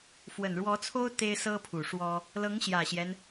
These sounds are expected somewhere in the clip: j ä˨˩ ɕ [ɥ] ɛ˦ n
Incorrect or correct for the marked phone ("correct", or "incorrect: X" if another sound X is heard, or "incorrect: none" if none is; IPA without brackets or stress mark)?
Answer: incorrect: j